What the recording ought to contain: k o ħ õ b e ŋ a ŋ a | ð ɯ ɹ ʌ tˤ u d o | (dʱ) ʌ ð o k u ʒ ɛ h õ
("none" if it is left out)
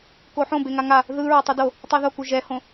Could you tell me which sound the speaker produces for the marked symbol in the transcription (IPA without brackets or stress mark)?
tˤ